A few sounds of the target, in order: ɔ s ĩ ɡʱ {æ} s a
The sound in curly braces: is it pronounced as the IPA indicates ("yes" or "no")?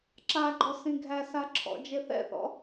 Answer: yes